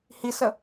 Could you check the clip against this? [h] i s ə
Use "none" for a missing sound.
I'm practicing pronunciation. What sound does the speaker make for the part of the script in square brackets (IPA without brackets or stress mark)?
h